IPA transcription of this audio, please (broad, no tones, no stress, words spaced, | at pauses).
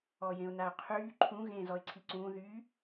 ɔjẽʊ̯naʊ̯qʰyː ǃʰũ ɣẽːzɔɪ̯ǀʰiǀũː ðy